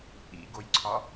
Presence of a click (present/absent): present